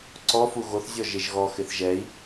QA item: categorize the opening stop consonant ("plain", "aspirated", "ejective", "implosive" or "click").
click